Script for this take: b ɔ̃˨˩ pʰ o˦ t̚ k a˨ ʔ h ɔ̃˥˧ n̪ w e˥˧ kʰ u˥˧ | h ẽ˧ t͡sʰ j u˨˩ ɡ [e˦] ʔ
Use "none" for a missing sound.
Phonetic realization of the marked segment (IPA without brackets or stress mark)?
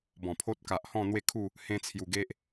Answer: e˦